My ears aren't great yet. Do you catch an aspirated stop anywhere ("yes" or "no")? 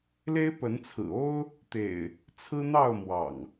yes